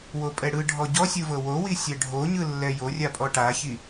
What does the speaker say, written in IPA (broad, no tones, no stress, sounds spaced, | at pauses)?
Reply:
w o pʼ ɛ ɽ ɯ ɖʱ ɔ ɟ ɔ sʲ ɯ v ɤ w o w i sʲ ɛ ɖʱ o ɲ ɯ lː ɛ j o rʲ a pʼ ɔ ʈ a ç i